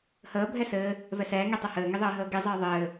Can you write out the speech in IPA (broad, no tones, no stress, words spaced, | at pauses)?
həː bʱɛsɘː | vɛsɛː ŋitˤəhɘː ŋiðˤɘːɦəːɡi zˤɘːðˤɘː